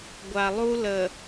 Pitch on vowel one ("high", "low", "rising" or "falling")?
low